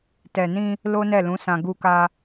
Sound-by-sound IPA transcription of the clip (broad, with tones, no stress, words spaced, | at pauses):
tɛ˨nĩ˧ | lo˦nɛ˦˨lũ˨˦sã˧ ɡu˧ka˧